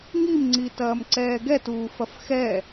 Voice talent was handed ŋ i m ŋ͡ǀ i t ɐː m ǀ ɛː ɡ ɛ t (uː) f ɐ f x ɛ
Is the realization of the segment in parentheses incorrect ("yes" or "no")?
no